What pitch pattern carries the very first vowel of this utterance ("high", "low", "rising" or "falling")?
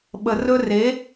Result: low